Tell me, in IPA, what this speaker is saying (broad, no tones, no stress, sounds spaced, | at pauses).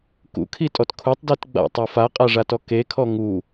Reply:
k ṵ kʰ i tʼ ɔ t kʰ u tˤ d i t ɡ͡b a̰ tˤ a f a qʼ a ʐ a t ɔ k e kʰ ɔ ŋ u